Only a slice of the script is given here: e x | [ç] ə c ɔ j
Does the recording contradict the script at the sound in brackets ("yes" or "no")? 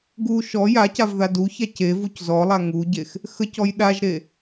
yes